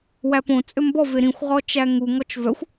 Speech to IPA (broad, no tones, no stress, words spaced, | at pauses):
wæpõ t͡sʼømbɔ veɾĩxʷ ʁɔt͡ʃæŋu ŋɔt͡ʃvœxʷ